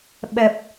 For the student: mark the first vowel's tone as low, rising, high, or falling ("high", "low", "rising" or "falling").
low